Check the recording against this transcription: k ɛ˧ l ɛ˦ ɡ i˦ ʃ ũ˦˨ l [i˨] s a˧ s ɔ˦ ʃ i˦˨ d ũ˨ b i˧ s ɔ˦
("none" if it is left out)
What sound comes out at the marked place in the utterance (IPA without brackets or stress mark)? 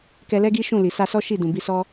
i˨